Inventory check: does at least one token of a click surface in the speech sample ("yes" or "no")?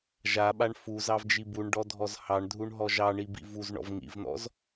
no